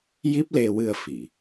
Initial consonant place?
palatal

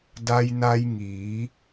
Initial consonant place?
alveolar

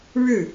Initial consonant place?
retroflex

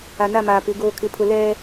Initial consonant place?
alveolar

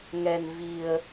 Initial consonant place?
velar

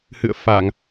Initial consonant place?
glottal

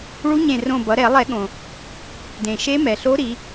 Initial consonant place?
retroflex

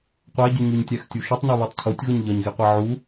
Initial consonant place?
uvular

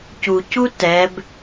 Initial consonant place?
palatal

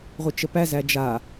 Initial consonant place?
uvular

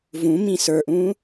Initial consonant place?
labial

